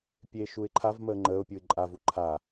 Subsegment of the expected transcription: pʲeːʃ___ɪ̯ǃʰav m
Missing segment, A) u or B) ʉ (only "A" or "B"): A